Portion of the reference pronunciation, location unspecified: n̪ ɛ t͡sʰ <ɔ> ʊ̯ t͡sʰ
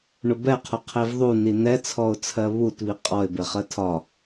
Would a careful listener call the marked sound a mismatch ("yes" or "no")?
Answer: no